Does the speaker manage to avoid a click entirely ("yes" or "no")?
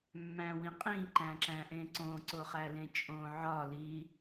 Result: no